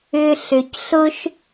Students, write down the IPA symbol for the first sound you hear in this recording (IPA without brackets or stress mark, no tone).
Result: ʏ